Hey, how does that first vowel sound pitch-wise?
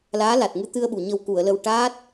rising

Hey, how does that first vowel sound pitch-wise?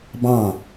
falling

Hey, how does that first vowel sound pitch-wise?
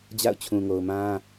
falling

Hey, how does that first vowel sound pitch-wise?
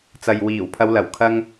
low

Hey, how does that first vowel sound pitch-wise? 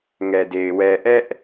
low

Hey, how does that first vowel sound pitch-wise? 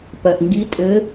low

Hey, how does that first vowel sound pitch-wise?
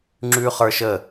high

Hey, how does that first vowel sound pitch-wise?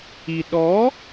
low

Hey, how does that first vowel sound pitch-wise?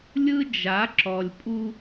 high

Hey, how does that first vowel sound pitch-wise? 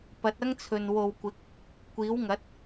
rising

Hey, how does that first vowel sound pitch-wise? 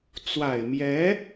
low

